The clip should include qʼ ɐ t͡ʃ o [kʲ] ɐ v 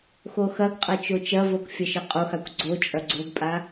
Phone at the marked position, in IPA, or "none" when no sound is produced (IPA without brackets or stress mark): t͡ʃ